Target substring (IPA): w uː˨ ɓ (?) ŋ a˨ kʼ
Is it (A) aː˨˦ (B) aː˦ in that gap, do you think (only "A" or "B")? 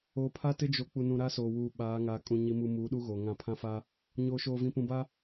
A